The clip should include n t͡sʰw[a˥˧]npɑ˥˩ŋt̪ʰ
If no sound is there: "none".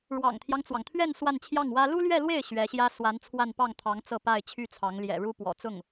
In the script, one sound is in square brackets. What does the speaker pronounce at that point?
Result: a˥˧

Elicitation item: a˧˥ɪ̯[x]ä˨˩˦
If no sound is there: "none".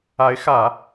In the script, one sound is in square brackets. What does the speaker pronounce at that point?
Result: x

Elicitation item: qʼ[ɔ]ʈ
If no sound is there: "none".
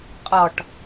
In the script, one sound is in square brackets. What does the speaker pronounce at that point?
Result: ɔ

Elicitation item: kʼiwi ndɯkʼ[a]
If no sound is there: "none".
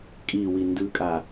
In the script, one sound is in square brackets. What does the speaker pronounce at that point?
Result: a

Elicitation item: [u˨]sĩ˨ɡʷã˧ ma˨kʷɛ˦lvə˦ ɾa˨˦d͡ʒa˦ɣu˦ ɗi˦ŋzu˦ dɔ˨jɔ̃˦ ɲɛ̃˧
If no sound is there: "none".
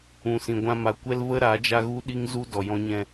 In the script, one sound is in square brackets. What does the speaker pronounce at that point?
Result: ũ˨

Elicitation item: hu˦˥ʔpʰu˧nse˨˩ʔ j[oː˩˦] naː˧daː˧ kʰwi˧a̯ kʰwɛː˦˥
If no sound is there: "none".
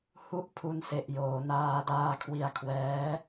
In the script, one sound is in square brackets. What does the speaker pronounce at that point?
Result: oː˩˦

